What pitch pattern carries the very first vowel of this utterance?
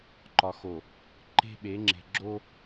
low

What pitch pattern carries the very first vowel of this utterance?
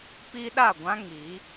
high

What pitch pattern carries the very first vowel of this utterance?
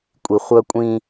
low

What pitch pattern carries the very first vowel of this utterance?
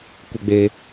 low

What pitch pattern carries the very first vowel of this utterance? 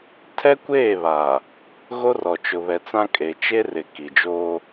high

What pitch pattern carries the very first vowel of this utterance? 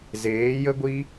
rising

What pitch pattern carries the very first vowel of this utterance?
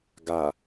low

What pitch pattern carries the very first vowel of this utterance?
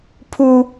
low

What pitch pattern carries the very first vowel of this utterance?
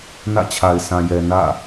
falling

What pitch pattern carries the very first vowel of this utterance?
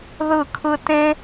falling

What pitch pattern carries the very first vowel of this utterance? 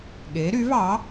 rising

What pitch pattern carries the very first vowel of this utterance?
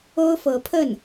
high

